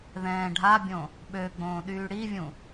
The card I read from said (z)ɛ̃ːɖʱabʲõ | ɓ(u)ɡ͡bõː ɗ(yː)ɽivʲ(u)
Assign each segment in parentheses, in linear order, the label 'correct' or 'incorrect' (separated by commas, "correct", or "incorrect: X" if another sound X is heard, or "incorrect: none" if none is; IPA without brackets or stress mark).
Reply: incorrect: ð, incorrect: ø, correct, incorrect: ũ